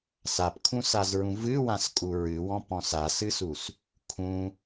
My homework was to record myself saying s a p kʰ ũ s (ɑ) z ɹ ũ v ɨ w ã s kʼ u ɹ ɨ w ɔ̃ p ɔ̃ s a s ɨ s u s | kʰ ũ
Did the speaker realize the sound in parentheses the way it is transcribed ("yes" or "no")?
no